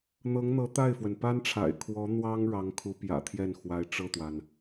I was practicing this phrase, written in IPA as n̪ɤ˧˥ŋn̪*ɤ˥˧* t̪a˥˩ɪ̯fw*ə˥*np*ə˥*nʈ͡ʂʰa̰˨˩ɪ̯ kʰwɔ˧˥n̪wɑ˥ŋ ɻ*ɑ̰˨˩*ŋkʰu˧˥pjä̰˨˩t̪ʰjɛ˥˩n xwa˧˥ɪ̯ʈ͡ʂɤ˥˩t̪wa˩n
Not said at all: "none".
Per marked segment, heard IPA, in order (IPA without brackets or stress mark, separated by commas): ɤ˧˥, ə˩, a˥, ɑ˧˥